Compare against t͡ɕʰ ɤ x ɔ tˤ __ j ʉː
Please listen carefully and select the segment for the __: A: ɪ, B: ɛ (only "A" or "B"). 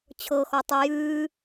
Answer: B